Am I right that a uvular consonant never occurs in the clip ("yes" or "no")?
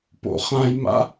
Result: no